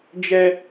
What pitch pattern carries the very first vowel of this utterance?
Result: high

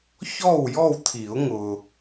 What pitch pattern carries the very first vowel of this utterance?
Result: falling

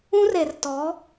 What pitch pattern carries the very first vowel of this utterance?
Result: high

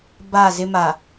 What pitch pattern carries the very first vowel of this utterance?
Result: falling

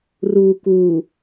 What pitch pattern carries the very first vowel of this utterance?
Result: low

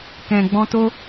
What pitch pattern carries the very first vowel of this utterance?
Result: low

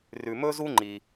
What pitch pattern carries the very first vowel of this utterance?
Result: low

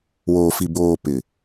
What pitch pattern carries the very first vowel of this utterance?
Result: low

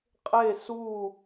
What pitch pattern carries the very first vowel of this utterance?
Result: falling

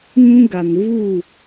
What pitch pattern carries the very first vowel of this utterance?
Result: high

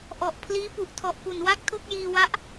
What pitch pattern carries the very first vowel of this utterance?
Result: low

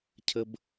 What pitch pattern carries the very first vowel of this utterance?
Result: high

